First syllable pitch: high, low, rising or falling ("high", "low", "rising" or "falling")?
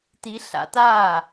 rising